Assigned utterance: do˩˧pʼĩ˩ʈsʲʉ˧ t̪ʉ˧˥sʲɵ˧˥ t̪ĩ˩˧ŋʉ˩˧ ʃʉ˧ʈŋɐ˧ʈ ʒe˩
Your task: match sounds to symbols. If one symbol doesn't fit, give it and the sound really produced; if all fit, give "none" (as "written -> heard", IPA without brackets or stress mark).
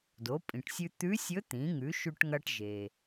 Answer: none